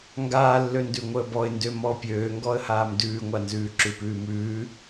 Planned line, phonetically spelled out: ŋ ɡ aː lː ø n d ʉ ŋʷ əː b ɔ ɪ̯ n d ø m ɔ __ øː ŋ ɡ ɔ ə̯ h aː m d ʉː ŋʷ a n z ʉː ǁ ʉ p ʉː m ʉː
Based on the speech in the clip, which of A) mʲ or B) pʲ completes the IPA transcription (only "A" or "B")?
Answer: B